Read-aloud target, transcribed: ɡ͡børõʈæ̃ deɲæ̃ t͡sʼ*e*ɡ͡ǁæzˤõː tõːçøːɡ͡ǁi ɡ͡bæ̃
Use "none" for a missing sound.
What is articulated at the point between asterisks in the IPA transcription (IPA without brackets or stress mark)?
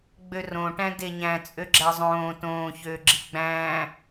ø